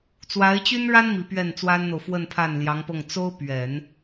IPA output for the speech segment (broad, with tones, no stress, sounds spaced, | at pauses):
t͡s w a˧˥ ɪ̯ t͡ɕ y˥ n ɻ a˥ n m i˧˥ p ɥ ɛ˥˩ n t͡s w a˥ n n̪ o˨ ʊ̯ f w ə˥˧ n pʰ a˥˩ n l j ɑ˧˥ ŋ p ɤ˥˩ ŋ t͡s o˥ ʊ̯ p ɥ ɛ˨˩˦ n